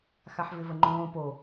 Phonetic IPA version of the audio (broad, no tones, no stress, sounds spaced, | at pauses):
x a ħ v ɪ v ə ŋ͡ǃ õː p o